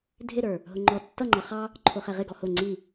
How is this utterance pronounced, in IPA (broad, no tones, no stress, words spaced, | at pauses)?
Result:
dʱɪɾə˞ | ɦʊŋ͡ǃɔ tːʌŋ͡ǃʌ χɑ | ǃʰʊχɛʁɪɡɔ hʊ ŋ͡ǀi